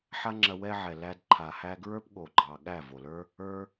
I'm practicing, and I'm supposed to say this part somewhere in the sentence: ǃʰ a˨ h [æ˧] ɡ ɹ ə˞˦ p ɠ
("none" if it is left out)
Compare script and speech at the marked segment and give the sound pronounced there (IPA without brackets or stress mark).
æ˧